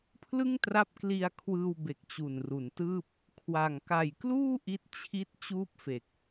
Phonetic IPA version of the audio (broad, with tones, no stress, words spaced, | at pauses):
pʰlɯ˥˩ŋtra˦˥p̚kli˧a̯kʰwɯː˧w be˨˩k̚t͡ɕu˨˩nru˩˦ntɯː˥˩p̚ | kʰwa˨˩ŋ ka˨˩jkluː˥˩ ʔi˦˥t̚ t͡ɕʰi˦˥t̚ t͡ɕuː˥˩p̚fe˨˩k̚